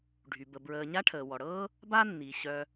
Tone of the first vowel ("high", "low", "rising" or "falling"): low